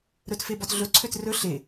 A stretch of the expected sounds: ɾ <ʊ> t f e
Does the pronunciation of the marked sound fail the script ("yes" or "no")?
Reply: yes